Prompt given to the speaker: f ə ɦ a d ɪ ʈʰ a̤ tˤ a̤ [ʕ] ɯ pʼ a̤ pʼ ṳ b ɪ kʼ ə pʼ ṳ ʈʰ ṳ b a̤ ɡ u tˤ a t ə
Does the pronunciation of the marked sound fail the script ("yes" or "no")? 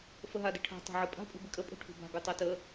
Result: no